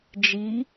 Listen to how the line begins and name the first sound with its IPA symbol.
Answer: d͡ʒ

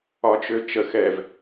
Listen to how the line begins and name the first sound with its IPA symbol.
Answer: ɒ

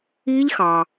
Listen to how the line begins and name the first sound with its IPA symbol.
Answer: i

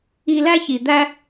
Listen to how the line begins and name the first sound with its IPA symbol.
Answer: i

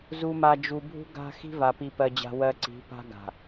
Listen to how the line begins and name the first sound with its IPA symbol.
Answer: z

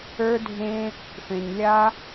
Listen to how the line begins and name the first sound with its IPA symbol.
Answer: ə˞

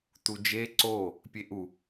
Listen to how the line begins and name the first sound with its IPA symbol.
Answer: t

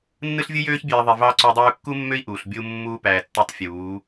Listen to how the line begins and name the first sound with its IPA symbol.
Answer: nː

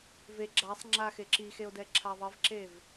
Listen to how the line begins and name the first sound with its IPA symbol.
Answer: v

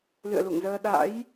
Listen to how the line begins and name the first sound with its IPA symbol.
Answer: l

